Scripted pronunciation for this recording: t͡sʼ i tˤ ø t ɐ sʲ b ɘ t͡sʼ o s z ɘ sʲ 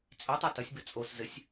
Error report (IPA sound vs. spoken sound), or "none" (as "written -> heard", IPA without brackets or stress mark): ø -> e